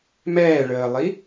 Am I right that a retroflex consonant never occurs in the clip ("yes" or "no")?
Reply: no